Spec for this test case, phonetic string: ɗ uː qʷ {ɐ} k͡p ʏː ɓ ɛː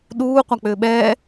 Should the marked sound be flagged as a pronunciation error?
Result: yes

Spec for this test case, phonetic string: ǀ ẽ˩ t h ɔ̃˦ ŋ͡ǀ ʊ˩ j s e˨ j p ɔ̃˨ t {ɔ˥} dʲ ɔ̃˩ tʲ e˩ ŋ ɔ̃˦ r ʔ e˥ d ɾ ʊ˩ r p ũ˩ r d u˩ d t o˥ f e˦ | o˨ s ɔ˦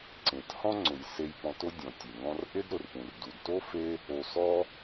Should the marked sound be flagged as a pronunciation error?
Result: yes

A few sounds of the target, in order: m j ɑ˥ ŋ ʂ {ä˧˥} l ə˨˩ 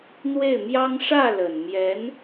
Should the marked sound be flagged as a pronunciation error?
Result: yes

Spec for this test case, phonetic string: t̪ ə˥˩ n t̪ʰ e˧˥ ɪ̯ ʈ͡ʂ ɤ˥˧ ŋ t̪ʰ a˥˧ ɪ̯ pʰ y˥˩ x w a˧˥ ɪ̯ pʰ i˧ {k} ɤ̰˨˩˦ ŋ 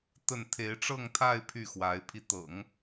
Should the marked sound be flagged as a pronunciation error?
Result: yes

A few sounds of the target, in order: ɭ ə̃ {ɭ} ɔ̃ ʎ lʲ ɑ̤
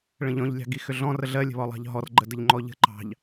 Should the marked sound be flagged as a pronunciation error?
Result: yes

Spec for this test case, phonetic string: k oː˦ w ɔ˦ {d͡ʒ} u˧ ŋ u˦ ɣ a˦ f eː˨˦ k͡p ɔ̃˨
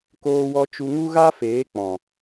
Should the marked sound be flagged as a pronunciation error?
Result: yes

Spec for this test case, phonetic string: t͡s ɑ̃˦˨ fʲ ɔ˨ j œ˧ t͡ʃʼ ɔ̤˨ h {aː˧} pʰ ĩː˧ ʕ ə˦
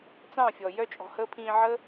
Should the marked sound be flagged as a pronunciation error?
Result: yes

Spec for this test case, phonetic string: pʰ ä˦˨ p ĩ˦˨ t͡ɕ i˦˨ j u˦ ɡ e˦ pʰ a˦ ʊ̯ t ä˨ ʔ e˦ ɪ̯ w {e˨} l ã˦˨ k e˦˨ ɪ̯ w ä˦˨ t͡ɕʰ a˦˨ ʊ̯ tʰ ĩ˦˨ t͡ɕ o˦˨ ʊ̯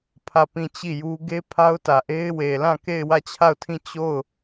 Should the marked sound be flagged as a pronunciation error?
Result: no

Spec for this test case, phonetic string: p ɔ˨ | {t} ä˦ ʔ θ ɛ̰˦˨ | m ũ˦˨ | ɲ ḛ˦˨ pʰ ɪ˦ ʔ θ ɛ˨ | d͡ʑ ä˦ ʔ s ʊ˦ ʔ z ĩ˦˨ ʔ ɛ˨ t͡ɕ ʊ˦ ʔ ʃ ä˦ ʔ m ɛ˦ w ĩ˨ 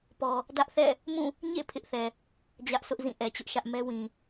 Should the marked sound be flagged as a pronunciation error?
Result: yes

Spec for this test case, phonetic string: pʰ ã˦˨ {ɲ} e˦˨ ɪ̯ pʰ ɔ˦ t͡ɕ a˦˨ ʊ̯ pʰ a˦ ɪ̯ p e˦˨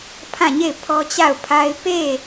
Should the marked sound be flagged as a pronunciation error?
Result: no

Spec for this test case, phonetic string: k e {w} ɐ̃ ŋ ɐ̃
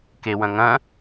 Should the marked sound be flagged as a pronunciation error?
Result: no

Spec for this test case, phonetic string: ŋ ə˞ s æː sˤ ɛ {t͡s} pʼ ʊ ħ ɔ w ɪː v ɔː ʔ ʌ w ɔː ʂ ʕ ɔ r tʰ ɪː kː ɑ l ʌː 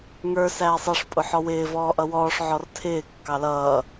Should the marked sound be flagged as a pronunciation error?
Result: yes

